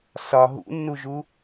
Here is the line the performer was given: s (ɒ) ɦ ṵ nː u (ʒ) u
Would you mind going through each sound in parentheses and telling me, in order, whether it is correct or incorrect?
correct, correct

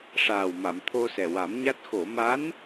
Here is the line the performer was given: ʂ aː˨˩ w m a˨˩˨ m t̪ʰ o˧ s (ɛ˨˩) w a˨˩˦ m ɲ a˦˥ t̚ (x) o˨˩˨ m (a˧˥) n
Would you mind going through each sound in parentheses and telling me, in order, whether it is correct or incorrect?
correct, correct, correct

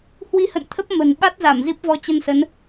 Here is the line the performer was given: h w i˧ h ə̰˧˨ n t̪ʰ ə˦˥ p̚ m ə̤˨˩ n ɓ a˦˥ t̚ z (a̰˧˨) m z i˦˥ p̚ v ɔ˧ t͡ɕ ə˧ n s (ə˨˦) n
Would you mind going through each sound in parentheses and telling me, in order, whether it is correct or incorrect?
incorrect, correct

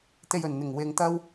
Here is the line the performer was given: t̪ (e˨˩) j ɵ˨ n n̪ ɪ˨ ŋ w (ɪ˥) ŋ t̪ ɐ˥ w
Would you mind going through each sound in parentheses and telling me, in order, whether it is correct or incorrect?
incorrect, incorrect

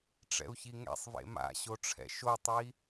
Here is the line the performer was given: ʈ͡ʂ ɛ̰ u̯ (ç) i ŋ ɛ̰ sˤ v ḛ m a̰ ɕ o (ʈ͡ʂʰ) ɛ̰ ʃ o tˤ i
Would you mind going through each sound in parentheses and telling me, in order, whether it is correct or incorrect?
correct, correct

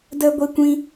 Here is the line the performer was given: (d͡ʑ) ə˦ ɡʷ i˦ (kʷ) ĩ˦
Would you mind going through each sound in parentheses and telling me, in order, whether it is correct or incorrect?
incorrect, correct

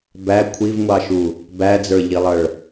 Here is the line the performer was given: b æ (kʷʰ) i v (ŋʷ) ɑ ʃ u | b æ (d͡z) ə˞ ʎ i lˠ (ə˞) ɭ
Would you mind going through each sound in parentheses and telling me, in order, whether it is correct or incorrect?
correct, correct, correct, incorrect

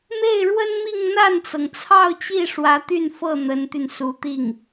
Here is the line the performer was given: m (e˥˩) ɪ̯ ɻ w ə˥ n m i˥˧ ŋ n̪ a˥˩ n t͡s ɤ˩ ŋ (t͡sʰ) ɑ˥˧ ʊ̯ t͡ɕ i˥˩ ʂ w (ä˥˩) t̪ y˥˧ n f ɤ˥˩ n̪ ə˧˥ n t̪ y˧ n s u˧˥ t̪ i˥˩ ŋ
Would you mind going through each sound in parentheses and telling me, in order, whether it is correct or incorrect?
correct, correct, incorrect

